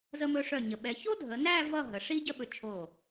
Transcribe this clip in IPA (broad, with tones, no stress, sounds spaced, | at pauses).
z ə˧ m ɵ˧ ʂ œ˧˩ ɲ ə˩˧ ɓ ɛ˩˧ ç o˥ dʱ ə˩˧ n æ˥˧ v ʌ˥˧ ɦ ə˩˧ ʂ i˥ ɟ ə˥ ɓ ɵ˧˩ t͡ʃʰ o˧˩